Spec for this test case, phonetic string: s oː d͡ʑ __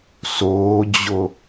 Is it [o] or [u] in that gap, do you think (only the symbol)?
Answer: o